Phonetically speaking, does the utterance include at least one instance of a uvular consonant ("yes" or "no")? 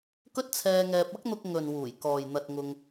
no